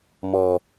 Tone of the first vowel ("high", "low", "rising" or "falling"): low